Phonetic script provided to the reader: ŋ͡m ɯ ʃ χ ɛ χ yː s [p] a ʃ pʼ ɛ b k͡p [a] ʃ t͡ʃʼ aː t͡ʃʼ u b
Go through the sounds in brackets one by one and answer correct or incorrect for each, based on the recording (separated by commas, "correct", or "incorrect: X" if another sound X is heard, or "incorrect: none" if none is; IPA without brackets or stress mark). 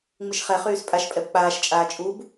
incorrect: pʼ, incorrect: aː